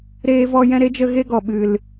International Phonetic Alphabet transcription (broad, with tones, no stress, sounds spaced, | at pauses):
ɾ eː˦ v ɔ˦ j ɛ̃˦ ɾ e˦ d͡ʒ ə˦ ɣ e˦ ɡ ɔ˨ ɓ ɨ˨ l